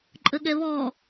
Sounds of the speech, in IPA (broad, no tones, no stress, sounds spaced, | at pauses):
ǃʼ ə ɠ ɛ β ɔ